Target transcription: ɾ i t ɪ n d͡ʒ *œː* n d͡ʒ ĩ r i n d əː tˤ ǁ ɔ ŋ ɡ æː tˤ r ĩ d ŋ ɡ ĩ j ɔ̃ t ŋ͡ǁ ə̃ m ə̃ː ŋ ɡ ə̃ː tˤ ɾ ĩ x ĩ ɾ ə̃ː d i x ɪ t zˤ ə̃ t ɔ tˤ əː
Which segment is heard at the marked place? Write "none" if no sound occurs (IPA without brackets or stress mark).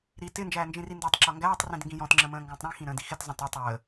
æː